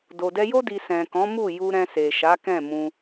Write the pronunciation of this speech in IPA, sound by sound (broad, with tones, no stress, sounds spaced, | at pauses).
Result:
d o˨ d ɛ˧ j o˦ d i˧ s ɛ̃˨ k ɔ̃˨˦ m u˦˨ j u˧ ɾ ɛ̃˧ s e˨ ʃ a˨˦ k ɛ̃˦˨ m ũ˧